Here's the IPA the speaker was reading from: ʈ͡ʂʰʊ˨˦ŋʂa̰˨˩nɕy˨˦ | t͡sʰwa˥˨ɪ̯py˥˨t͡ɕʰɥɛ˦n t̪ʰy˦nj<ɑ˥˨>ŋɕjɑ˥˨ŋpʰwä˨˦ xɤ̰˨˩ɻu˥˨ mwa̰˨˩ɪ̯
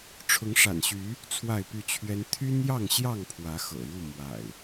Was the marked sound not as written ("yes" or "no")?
no